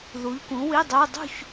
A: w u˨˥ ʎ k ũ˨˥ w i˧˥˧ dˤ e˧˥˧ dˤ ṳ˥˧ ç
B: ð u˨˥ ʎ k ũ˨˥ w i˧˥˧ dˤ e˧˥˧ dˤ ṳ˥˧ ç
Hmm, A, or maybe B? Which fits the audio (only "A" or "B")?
B